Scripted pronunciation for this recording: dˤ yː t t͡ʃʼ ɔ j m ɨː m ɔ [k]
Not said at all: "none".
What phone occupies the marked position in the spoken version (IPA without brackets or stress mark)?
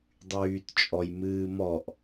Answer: ʔ